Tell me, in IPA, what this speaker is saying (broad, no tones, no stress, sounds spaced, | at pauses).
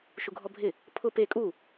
ʃ u ɡʱ ɔ bʱ ɪ | pʰ ʊ p e kʼ u